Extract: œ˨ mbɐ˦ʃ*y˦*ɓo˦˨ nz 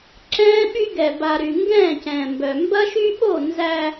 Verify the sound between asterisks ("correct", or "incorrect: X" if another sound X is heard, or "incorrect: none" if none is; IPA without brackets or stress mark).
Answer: correct